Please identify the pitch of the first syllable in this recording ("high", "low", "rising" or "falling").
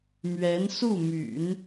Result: rising